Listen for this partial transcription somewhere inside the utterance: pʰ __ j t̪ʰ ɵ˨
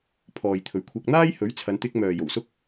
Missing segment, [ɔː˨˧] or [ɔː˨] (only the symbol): ɔː˨